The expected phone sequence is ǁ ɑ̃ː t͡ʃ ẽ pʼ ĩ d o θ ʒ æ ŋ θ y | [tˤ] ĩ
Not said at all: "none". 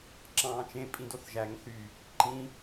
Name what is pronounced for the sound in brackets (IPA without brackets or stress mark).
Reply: ǃ